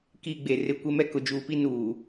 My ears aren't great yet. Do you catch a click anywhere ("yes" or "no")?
no